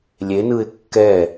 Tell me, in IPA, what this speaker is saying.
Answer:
lʲenɯɪ̯ kːɛ

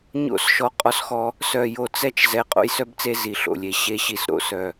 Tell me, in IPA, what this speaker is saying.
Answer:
ɲo̰˦˨s ʃɔ˦qʼɔ˦sxɔ˦ | sœ˦˨jo˦˨ t͡sɛ˦t͡ʃ zɛ˦ qʼo̰˦jsœ˦bt͡se˦ zi˦˨ɬo̰˦˨lʲe˦ ɕe˦ɕi˦˨sɾo̰˦ sœ˦˨

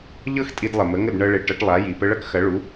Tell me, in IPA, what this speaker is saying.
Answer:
ʎɤ˥x tʼi˧dlˠə˩mə˩˥ŋə˥˩d ɳɤ˧ɭe˩˥ ʈʌ˩˥ʈlˠa˩˥ji˩ pə˧ɭʌ˥kxɐ˩˥ɭu˩˥

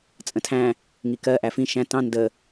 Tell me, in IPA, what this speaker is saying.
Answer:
t͡sʼə̃tʰæ̃ | ŋikɜ ʔæfĩ ʃæ̃ tɑ̃ ndə

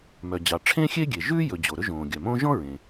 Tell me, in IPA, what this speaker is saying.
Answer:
mœ˩d͡ʑɑ˩ʈ͡ʂʰẽ˥ xʲe˥ɡʲe˩ ʒʉː˥jɵ˩ d͡ʑo˩ɾɵ˥ʒõː˩ ɡʲœ˩mõ˥ ʒɔ̃˥ ɹẽ˩

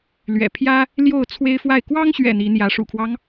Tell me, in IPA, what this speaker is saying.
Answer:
lɥɛ̰˨˩ pʰjä˦ | ljo˥˨ʊ̯t͡sʰwe˦ɪ̯fwa˥˨ɪ̯ kwɑ˦ŋɕɥɛ̰˨˩ n̪i˨˦n̪jä˨˦ ʂṵ˨˩kʰwɑ˦ŋ

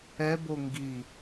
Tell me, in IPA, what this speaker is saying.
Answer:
ɛbo ŋɡi

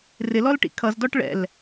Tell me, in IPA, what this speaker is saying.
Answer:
rɪlɔlʈḭ kʰʌzdɔʈ ɭɛ̰l

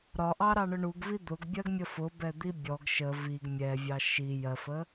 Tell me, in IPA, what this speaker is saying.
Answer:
ɾɒʔɑɾɑɳʊ ɳuɡvi d̪ʊɡbʲɜɡmʲə fʊbɛd̪i bʲɔɡ ʃə viɡ mʲɛvʲɑ ʃi jɜfə

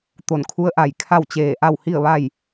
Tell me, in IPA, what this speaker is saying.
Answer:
t̪o˧˩nkʰu˧˥ə̯ʔa˧˩j kʰa˥˨wt͡ɕeː˧˩ ʔa˥˨whi˥˨ə̯ʋa˥˨j

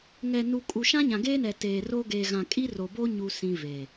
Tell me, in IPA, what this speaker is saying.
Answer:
ŋɛ˨nu˨kʼu˨ ʃã˦ɲã˨ɡeː˦nɛ˨ teː˨ro˦ ɡeː˨ɣã˨kʼi˦ro˨ bo˦ɲu˨sĩ˨ veː˨

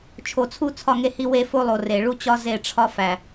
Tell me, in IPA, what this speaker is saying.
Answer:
t͡ʃʰo˨t͡sʰu˦ t͡sʰɒ˦˨ŋe˦hi˦ we˦fo˦lˠo˨ re˨ɭu˦t͡ɕɒ˦ ze˦˨ʈ͡ʂʰɒ˦ fæ˨

